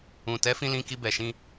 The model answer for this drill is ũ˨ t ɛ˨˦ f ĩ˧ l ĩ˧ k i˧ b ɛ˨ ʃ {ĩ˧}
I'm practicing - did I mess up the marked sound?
no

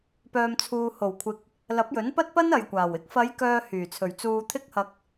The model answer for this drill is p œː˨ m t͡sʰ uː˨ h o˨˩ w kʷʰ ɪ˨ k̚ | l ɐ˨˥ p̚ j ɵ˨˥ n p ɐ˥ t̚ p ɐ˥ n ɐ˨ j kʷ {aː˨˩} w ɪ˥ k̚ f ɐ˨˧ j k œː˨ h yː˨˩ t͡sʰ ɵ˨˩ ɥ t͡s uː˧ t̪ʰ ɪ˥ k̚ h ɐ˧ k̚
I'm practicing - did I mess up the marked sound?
no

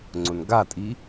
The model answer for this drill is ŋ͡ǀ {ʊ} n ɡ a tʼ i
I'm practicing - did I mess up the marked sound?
no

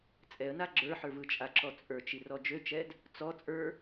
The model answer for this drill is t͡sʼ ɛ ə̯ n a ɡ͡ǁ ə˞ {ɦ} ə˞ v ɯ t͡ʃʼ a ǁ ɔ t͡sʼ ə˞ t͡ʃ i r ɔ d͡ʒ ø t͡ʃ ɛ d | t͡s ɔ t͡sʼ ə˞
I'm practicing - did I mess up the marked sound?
yes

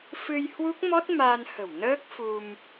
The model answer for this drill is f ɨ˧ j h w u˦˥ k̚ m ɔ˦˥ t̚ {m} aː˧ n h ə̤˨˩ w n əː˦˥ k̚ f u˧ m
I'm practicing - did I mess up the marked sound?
no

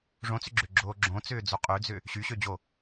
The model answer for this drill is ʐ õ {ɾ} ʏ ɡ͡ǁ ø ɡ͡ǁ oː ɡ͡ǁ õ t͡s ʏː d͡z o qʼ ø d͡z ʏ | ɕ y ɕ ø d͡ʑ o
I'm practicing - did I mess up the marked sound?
yes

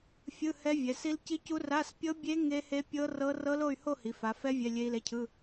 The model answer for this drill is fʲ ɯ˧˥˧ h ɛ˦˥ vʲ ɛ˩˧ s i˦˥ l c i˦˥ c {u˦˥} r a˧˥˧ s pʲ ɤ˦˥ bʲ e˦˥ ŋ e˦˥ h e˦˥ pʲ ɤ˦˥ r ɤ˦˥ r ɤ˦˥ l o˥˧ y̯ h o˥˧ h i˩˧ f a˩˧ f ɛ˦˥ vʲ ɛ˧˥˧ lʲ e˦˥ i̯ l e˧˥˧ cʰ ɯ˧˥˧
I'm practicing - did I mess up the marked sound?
no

